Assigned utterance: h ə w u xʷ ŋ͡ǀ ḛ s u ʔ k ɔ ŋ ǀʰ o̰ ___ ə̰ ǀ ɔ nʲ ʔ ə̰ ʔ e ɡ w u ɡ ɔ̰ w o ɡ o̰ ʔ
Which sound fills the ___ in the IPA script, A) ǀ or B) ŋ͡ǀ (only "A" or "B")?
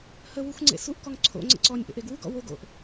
B